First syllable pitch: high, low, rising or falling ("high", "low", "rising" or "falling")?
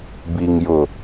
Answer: low